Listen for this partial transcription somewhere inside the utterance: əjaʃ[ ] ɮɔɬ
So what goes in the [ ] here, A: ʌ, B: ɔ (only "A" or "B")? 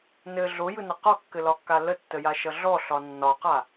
A